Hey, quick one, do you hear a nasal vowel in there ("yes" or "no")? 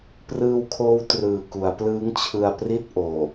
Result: no